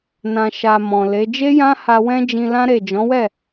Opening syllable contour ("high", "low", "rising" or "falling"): low